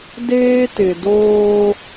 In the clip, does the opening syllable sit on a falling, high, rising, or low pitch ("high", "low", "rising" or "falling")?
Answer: high